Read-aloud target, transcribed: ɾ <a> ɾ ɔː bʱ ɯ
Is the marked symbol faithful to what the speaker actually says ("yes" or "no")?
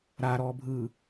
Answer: yes